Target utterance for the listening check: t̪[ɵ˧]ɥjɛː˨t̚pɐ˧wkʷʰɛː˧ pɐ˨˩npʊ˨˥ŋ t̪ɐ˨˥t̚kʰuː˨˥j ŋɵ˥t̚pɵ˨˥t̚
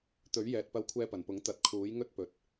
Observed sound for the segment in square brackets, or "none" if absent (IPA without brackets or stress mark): ɵ˨˥